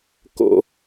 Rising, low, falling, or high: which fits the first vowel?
high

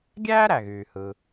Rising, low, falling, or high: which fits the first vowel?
high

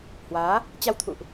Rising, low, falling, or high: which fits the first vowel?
rising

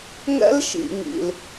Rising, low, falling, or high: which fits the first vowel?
high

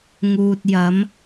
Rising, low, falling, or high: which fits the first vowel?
low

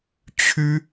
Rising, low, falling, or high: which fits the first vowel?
high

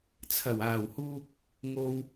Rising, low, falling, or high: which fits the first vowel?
low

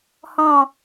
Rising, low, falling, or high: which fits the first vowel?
falling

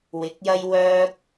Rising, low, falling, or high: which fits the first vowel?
rising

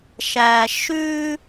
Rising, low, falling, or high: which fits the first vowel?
low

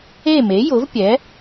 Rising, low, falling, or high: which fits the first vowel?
falling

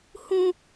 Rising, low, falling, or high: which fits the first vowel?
high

